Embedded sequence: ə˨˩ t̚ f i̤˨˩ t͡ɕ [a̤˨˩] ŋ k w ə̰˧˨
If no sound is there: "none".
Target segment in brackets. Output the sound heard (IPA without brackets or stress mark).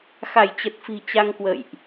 a˧